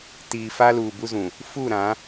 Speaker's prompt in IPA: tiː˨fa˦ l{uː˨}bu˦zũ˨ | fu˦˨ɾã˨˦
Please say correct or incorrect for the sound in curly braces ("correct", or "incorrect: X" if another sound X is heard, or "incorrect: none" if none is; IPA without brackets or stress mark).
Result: correct